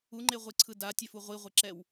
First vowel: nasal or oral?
oral